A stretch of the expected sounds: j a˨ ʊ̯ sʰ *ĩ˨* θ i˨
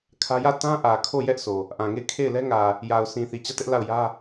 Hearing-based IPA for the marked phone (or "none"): ĩ˨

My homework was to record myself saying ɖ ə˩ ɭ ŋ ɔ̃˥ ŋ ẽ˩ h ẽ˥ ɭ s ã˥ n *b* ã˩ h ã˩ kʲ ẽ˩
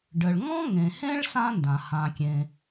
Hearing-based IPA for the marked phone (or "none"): d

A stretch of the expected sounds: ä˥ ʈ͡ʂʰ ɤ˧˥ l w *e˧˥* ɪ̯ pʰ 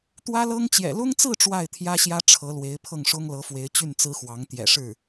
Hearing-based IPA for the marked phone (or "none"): e˧˥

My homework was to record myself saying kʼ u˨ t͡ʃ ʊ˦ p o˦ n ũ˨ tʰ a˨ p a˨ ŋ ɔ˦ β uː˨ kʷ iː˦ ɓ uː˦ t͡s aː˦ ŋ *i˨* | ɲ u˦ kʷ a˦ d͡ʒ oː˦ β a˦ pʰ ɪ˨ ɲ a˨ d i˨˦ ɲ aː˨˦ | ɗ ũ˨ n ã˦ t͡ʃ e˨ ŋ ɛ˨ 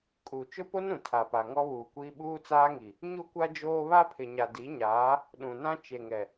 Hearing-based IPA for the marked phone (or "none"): i˨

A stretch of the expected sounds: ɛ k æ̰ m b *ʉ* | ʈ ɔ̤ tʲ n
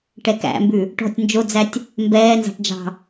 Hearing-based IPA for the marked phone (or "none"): ʉ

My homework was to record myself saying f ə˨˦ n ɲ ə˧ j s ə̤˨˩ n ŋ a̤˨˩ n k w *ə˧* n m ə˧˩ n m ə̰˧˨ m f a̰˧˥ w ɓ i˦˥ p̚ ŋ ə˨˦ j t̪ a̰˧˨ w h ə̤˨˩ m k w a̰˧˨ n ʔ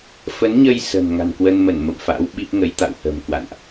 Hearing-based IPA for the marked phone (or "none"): ə˧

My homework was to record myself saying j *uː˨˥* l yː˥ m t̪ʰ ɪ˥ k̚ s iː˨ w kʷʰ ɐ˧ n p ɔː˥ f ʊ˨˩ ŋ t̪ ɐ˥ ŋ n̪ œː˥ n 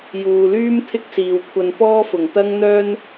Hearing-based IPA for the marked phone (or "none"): uː˨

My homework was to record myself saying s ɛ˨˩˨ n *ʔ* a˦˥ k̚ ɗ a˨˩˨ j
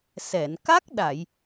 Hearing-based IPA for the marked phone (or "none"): k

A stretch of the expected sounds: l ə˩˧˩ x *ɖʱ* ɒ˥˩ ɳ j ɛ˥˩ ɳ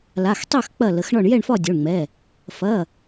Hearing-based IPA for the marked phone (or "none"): ɳ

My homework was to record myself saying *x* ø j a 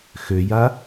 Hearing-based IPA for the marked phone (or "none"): x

